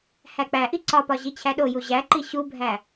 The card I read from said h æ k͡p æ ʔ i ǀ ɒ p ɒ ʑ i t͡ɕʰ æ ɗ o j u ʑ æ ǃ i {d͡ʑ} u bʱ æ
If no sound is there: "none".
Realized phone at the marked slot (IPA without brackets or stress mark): ɕ